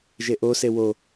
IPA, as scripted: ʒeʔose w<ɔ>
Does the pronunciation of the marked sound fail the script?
yes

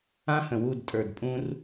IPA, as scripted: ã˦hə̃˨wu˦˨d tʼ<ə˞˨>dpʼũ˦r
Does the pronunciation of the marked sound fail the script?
no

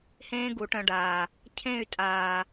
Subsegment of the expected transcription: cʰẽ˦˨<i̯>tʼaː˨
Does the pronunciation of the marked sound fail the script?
yes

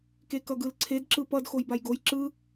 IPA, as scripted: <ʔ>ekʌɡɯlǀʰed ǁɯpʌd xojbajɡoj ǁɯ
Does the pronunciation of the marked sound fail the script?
yes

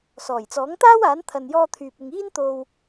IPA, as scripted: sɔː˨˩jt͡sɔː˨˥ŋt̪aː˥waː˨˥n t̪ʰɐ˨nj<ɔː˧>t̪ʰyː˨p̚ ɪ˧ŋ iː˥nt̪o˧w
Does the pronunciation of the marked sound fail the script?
no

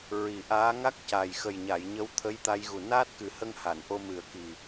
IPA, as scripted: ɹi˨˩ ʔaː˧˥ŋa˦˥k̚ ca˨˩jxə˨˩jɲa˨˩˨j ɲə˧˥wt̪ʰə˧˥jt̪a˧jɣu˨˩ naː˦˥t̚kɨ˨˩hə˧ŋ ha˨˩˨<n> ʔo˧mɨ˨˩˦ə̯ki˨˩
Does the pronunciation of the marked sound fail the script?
no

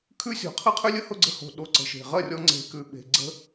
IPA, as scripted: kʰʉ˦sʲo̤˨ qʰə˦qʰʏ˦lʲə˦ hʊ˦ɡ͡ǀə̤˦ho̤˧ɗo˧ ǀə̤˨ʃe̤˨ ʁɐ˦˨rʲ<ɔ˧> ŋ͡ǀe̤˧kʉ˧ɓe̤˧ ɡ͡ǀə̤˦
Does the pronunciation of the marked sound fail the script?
no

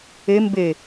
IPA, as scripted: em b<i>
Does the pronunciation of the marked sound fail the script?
yes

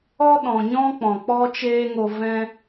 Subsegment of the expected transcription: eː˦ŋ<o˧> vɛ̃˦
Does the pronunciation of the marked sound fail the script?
no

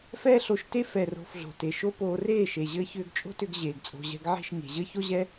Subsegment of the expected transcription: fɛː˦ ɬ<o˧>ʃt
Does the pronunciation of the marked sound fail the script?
no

